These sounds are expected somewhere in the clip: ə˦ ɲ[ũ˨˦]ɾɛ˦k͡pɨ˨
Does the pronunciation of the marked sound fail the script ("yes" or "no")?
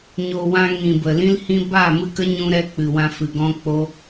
yes